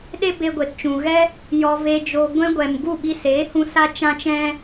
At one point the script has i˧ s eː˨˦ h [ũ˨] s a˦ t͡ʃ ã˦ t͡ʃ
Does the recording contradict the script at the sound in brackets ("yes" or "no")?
yes